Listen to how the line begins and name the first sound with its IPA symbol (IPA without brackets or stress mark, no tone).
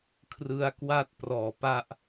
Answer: kʰ